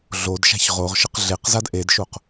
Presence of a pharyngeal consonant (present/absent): absent